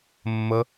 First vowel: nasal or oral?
oral